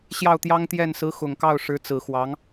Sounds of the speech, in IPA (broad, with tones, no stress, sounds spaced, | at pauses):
ɕ j ɑ˥˩ ʊ̯ t̪ j ɑ˥ ŋ t̪ j ɛ˥˩ n s ɹ̩˧˥ x ʊ˨˩ ŋ k ɑ˥˩ ʊ̯ ʂ ɻ̩˧˥ t͡s ɹ̩˨˩ x w ɑ˧˥ ŋ